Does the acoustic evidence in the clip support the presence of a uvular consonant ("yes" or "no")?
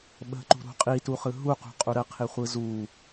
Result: yes